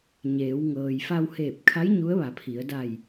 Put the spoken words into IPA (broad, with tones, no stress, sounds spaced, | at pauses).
ɲ eː˩˧ w ŋ ɤː˩ j f a˧ w h eː˧˩ p̚ kʰ a˧˥ j ɲ u˧˥ ə̯ ʋ a˩˧ pʰ i˩˧ ə̯ d a˧˩ j